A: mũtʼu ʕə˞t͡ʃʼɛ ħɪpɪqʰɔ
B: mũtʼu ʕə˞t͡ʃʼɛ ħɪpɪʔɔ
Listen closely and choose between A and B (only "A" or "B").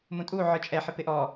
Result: B